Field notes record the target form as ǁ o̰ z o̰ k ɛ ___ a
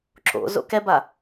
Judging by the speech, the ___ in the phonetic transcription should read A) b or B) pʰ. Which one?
A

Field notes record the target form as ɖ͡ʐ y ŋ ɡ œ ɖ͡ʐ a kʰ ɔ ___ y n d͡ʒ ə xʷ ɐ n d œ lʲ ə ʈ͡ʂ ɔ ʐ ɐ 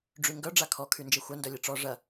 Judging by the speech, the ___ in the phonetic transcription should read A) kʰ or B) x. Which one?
A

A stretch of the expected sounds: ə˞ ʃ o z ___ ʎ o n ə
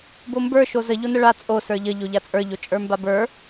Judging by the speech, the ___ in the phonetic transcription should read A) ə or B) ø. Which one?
A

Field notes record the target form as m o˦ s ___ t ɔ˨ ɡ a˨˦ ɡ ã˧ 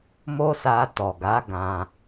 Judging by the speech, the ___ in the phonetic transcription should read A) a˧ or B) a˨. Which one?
A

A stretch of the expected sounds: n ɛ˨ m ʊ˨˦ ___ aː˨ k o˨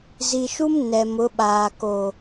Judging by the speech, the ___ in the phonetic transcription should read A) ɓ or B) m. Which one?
A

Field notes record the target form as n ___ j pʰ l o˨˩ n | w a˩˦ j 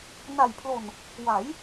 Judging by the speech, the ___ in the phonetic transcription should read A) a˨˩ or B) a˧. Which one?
A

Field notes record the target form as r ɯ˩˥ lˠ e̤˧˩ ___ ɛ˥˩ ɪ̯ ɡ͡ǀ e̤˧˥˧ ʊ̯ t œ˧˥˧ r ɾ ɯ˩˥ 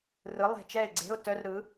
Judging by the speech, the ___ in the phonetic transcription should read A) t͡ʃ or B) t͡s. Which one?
A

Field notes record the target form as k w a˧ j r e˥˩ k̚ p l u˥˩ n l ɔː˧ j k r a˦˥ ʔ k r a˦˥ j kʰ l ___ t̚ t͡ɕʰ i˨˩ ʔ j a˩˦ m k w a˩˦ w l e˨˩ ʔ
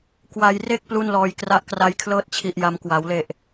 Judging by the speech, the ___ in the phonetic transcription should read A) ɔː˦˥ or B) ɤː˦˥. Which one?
B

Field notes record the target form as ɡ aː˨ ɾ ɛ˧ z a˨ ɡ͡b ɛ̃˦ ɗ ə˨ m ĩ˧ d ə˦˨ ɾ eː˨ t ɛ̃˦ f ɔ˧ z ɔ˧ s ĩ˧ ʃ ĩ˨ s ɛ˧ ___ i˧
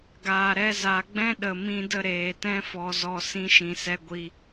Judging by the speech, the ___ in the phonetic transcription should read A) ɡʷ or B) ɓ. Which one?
A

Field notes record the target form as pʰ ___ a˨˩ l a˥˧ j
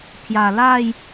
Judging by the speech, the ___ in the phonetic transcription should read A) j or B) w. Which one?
A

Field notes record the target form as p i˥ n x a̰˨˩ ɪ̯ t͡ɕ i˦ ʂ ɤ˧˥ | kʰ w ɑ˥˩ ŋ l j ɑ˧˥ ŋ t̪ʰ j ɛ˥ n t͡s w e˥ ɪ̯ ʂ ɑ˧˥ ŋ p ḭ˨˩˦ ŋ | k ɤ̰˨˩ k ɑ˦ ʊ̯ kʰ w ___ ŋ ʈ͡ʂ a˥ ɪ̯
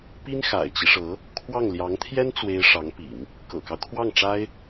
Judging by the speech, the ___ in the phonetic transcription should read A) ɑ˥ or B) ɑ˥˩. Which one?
B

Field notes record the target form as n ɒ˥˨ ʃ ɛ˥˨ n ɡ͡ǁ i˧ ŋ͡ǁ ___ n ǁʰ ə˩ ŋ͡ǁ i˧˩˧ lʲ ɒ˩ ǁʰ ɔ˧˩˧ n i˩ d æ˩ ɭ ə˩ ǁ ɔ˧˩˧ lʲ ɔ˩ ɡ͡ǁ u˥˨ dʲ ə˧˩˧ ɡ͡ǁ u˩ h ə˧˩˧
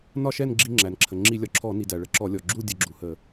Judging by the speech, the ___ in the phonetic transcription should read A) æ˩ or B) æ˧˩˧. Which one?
A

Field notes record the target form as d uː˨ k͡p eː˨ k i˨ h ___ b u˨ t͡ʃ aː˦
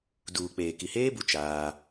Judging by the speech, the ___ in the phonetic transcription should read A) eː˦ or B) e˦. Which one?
A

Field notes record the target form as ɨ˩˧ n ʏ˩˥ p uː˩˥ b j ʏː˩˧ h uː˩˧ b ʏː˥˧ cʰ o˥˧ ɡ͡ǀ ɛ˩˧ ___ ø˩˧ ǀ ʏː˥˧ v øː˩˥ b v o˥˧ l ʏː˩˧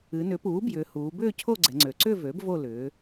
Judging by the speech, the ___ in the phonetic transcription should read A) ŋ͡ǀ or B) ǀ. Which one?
A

